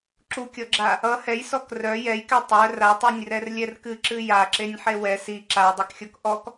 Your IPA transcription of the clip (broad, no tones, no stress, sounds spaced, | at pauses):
ǁ u kʲ ɔ ɡ͡ǁ a | ʌ h ɛ j s ɔ k r œ j ɛ j k ɛ tˤ œ r a tˤ i nʲ r ɛ r lʲ ɛ r k ɨ ǁ ɨ j a ǁ e nʲ ħ e w ɛ s i ǁ a w dˤ i k xʲ ɔ k ʔ ɔ k